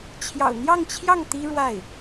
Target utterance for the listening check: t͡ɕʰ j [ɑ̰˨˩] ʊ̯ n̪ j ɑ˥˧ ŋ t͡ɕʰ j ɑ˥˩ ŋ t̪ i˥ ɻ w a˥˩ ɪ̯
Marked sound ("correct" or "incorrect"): correct